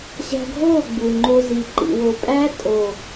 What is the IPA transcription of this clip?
ɕ æ̤˧ ɡʱ oː˦˨ ɡ͡b u˨ ŋ͡ǃ o˧ z i˨ ǃ ḭ˨ w o˨ pʼ æ˦ tʼ o˨

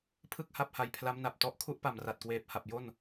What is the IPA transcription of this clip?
pʰ ɯ˥˩ k̚ h a˥˩ p̚ h a˧ j pʰ l a˦˥ m n a˨˩ p̚ t ɔ˦˥ ʔ kʰ u˦˥ ʔ p a˨˩ m r a˨˩ t̚ k w eː˨˩ p̚ h a˨˩ p̚ j o˥˩ n

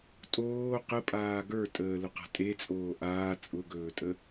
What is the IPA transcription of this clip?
tʼ oː q ə pʼ aː ɡ ə˞ tʼ əː l ʊ q a̤ tʼ e t͡sʼ oː ʔ aː t͡sʼ ʊ ɡ ɵː tʼ ə

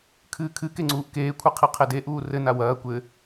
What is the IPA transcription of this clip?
kʰ ɨː kʰ ɨ k e ŋ͡ǀ uː ʔ k eː kʷʰ ɘ qʰ i qʰ e d e ʔ uː r ɘ n a w ɐː kʷ ɘ

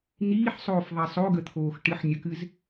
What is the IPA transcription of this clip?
n̪ iː ħ sˤ oː f ðˤ i sˤ o ɡ ə t̪ʰ oː x ʈ ɨ ħ nʲ ə k ɨ z

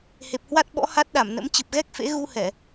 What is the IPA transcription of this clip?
h e˨˩ p̚ h w a˦˥ t̚ ɓ ɔ̰˧˥ h a˦˥ t̚ ɗ a˧˩ m n ə̰˧˥ m t͡ɕ ɨ˨˩ p̚ ɣ ɛ˦˥ k̚ f ḛ˧˥ ɣ u˧ h ɛ˧˩˨

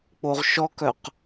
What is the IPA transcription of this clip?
k͡p o ʁ ʃ ɔ k œ q

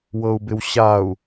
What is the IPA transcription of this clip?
w ɤ u̯ b ɪ w ɕ a u̯

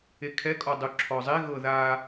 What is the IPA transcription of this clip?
e kʰ ɛ kʼ ɔ dˤ u ǁʰ ɔ zˤ e ɣ ɤ ð a

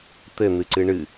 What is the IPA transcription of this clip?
t̪ ɘ n̪ ɨ ǀ ɨ ɳ ɨ

